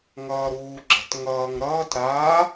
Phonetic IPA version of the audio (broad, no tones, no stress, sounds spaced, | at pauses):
ŋ ʌː ɾ uː ɡ͡ǁ ə̤ t ŋ ʌː ŋ ɾ ʌː t ɾ aː